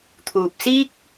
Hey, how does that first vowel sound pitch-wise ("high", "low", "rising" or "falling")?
low